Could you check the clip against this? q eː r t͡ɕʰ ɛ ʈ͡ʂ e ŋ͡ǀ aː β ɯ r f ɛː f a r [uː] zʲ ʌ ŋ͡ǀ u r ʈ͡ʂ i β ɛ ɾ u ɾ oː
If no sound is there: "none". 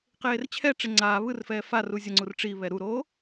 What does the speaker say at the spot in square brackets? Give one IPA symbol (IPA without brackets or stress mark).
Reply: uː